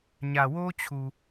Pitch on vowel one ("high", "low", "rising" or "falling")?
low